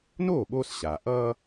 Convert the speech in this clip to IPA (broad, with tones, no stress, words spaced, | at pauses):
noː˥˩ɓoː˧s ɕaː˩ʔʌː˥